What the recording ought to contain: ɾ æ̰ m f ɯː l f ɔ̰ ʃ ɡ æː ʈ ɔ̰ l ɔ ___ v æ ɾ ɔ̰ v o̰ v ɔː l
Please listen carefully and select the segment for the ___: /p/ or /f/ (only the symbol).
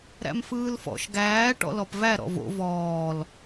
p